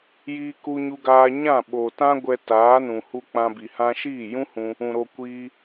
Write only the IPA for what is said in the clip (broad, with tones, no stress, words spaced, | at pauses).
jiː˧ku˧ɲu˧ɡaː˧ ɲã˦˨ɓo˨tã˦ ɡʷɛ˧taː˨˦nũ˨hu˧ k͡pã˧bi˨ hã˧ʃiː˦˨jũ˦hũ˧ | ũ˨ ɾo˧ kʷiː˧